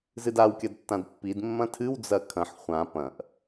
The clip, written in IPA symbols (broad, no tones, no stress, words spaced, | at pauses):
zɨdaw kʲɐdtːãdpːid mːɐ̃tʰɨw d͡zɐkʰɐ̃ħ χʷã pɐ̃ʔ